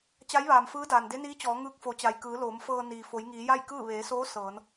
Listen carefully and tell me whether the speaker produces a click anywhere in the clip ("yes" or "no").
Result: no